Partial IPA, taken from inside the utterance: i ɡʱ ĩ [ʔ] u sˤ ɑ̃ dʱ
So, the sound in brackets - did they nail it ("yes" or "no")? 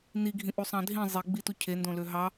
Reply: yes